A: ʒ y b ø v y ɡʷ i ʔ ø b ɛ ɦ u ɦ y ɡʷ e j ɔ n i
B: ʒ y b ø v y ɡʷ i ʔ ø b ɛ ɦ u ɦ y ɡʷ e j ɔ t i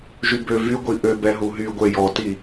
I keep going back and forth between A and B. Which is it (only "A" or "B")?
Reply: B